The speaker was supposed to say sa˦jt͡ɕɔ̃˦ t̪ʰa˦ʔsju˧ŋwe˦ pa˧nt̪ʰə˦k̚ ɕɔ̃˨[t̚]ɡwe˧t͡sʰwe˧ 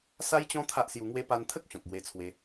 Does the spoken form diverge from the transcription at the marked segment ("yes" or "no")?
yes